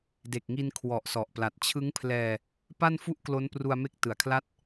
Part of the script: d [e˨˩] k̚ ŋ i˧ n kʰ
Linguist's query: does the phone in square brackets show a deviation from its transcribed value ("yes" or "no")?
no